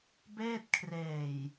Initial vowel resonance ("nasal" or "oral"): oral